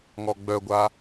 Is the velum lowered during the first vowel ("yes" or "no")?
no